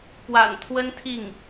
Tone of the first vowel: low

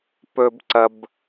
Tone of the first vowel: high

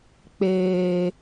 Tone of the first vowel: low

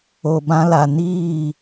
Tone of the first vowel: low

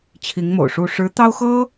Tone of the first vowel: rising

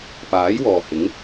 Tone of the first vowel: rising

